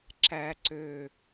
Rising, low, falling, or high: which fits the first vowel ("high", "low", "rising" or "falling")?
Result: low